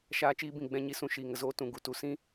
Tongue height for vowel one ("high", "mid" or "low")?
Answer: low